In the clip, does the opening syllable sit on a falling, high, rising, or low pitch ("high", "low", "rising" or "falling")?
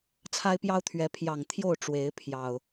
high